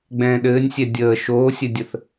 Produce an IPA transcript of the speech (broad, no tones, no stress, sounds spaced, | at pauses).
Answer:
ɡ͡b ɛ̃ː ɗ ɘː nʲ sʲ ɛ dʲ əː ʃ oː sʲ ɘ dʲ ə θ